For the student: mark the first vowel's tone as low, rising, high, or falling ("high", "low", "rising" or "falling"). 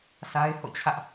high